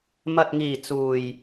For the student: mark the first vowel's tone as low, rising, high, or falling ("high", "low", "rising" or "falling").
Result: low